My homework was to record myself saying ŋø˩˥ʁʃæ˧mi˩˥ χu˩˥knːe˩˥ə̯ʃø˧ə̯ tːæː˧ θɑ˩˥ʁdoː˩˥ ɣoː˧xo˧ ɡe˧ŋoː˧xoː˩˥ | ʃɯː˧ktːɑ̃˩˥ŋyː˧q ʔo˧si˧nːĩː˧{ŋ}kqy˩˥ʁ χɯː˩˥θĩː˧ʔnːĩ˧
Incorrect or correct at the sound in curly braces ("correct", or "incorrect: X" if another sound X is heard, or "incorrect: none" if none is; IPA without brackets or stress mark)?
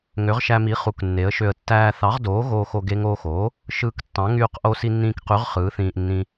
incorrect: none